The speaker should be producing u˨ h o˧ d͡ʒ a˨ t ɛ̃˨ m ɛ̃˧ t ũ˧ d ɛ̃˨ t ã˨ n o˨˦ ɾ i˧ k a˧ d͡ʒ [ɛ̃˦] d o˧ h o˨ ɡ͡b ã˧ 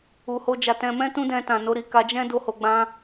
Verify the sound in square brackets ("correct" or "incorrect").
correct